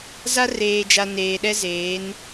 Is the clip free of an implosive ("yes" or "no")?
no